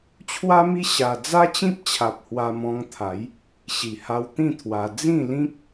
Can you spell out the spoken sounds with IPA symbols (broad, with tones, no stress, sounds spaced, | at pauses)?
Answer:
t͡ɕʰ w a˦ m i˦ ɕ a˧ d͡z a˦ t͡ɕ ĩ˦ p̚ t͡ɕʰ a˨ p̚ h w a˧ m ɔ̃˧ ŋ t̪ʰ a˨˦ j | ɕ i˨˩ h a˧ w t̪ ĩ˥˧ t̪ʰ w a˧ d͡z ĩ˥˧ l ĩ˦ k̚